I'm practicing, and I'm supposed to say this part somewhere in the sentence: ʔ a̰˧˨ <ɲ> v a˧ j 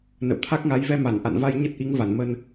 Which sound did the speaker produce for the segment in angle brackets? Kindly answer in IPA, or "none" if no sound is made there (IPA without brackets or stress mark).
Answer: n